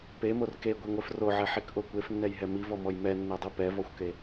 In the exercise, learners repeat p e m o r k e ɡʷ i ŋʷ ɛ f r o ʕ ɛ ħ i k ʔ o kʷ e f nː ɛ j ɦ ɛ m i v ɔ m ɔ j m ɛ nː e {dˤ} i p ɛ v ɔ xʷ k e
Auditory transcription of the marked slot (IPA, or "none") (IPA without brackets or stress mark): dˤ